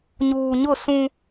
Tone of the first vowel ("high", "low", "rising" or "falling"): low